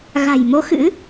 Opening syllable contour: low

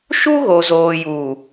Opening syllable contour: high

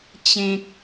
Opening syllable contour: high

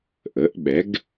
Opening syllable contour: rising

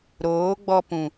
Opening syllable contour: rising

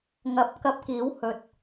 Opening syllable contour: rising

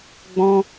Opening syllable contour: high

